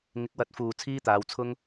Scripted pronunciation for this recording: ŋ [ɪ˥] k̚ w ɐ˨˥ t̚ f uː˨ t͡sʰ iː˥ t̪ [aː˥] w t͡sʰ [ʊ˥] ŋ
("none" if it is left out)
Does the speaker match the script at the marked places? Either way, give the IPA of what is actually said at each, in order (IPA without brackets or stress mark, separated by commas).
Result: ɪ˨˥, aː˨˧, ʊ˥